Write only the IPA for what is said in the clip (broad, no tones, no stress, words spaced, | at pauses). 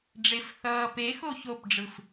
ɖ͡ʐef θʌːpe xoçopɖ͡ʐɯf